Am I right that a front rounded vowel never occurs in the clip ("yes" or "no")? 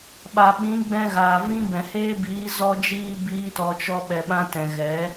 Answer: yes